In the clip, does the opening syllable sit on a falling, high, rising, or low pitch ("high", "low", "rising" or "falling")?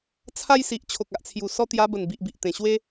high